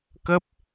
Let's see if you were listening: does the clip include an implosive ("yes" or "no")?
no